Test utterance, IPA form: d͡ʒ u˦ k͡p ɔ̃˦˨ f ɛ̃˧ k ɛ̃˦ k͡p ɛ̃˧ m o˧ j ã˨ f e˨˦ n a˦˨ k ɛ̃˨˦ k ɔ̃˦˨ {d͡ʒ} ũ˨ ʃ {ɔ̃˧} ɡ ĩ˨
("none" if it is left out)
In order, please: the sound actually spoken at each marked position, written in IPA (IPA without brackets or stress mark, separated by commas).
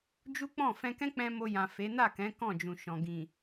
d͡ʒ, ɔ̃˨